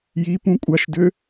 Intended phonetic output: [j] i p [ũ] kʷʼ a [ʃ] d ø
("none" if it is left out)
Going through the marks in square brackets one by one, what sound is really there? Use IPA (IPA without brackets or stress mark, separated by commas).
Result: j, ũ, ʃ